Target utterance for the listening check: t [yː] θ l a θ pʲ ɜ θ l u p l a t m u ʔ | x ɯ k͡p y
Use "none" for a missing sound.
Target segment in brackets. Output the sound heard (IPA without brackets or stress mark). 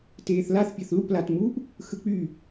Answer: eː